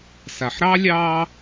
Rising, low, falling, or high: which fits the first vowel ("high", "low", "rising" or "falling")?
low